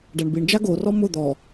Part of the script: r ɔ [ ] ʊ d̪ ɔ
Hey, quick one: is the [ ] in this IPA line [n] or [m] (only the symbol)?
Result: m